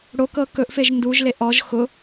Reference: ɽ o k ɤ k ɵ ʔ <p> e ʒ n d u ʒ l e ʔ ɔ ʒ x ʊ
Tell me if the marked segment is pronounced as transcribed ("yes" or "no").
no